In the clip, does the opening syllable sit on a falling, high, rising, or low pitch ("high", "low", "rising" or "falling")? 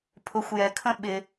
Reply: rising